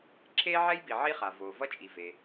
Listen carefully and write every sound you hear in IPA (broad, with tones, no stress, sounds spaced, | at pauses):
ǁʰ eː˥ ʕ ɛ˥ j b i˩ ʕ i˥ χ a˩ v oː˩ v ʌ˥ t͡ʃʼ i˩ v e˩